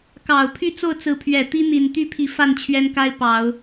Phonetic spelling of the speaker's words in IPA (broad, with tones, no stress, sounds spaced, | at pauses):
k ɑ˨˩ ʊ̯ pʰ y˥˧ t͡s o˥˩ ʊ̯ t͡s ɹ̩˧˥ pʰ ɥ ɛ˨˩ t̪ i˥ n̪ i˨˩ n t̪ y˥˩ pʰ i˧˥ f a˥˩ n t͡ɕʰ ɥ ɛ˥ n k a˥ ɪ̯ p ɑ˨˩˦ ʊ̯